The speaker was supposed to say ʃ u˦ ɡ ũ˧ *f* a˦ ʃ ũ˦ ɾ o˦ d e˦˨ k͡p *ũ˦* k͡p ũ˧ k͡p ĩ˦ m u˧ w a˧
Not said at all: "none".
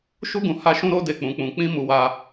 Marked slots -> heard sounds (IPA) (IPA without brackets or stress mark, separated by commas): h, ũ˧